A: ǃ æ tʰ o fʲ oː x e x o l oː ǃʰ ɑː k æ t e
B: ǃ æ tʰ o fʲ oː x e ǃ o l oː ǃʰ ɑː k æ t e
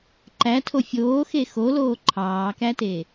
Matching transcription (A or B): A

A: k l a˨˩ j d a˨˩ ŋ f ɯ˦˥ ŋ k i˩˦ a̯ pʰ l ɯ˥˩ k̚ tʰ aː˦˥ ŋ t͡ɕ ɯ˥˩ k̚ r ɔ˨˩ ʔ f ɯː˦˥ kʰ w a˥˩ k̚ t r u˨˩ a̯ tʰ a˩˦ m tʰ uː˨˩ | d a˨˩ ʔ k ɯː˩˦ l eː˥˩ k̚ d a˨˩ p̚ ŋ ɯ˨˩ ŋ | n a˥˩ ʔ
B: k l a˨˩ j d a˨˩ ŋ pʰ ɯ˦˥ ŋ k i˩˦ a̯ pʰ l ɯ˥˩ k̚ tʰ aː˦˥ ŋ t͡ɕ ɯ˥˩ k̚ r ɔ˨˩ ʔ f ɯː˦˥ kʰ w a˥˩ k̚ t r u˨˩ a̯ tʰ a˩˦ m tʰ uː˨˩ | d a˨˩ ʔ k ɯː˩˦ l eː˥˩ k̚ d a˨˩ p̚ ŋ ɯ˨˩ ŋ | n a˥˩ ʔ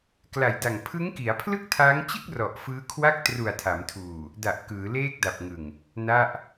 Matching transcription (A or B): B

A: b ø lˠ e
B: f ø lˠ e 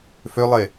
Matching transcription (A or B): B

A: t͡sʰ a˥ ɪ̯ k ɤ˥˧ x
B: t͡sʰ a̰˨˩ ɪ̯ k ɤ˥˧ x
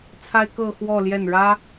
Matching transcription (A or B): A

